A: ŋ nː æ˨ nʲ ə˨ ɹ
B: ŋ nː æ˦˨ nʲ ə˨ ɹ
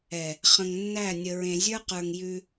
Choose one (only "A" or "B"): B